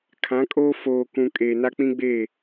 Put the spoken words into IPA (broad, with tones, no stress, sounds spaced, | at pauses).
kʰ ã˨˦ kʼ oː˦ f oː˨ k ũ˨ kʼ eː˨ n a˦ k͡p ĩ˦ ɡ͡b eː˦˨